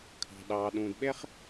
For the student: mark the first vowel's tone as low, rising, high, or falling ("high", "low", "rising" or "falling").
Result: low